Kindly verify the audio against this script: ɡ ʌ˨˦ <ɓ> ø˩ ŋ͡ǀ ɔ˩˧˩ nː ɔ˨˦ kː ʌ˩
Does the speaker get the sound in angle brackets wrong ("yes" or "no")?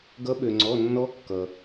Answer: no